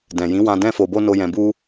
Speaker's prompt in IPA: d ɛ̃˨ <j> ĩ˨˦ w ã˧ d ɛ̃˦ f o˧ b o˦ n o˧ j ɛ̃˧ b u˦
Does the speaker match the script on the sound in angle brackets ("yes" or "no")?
yes